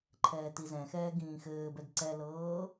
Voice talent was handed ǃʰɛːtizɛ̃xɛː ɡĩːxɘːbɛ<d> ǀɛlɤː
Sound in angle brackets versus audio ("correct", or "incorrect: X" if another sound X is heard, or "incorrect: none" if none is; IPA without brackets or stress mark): correct